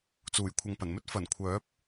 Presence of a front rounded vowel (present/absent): present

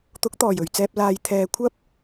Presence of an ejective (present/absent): absent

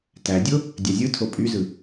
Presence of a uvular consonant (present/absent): absent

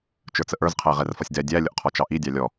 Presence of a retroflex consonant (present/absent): absent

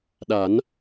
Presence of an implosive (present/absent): present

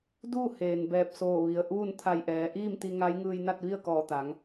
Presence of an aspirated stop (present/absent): present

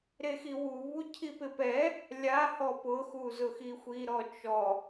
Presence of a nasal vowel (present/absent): absent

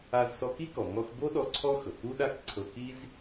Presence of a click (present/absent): present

